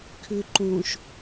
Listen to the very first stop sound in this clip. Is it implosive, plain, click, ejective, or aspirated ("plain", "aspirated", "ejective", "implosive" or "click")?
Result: aspirated